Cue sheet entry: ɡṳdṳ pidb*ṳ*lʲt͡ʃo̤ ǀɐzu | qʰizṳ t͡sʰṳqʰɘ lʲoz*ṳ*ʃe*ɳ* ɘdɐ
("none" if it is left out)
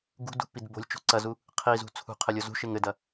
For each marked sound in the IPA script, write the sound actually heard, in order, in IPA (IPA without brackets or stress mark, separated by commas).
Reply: o̤, ṳ, ŋ